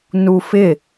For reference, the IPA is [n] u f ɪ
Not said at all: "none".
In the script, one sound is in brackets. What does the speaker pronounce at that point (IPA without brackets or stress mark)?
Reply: n